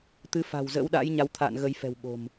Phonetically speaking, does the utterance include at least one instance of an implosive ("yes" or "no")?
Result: yes